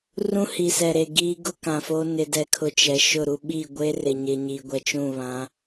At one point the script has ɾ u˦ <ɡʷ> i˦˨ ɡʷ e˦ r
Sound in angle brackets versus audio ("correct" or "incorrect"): incorrect